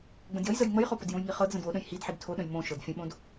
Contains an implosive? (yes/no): yes